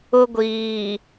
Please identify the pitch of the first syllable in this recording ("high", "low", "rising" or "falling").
high